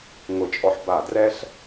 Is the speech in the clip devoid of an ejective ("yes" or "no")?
no